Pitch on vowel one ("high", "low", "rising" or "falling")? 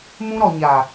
high